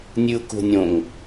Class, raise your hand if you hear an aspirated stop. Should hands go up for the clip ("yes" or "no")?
no